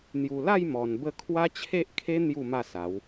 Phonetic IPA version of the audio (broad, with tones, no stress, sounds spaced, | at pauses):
n̪ j u˨˩ l a˥˧ j m ɔ˨˩ n b ə˥˧ kʰ w a˦ t͡ɕʰ e˦ ʔ kʰ e˦ n̪ j u˥˧ m a˥˧ s a˨˦ w